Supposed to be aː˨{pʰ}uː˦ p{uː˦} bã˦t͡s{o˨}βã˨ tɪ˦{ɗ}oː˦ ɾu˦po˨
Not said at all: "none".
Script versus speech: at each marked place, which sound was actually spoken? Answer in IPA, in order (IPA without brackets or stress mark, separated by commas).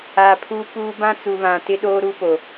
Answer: pʰ, uː˦, u˨, ɗ